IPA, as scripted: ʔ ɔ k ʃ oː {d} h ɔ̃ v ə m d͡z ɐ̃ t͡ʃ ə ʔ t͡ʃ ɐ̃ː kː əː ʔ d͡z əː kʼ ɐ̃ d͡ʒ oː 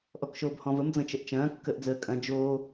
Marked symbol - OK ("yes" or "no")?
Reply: no